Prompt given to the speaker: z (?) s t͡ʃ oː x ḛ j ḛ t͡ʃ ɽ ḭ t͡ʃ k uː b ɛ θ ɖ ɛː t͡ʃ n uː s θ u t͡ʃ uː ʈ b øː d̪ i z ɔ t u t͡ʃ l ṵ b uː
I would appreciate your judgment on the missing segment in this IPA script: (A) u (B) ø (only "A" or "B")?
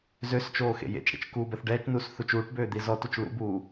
B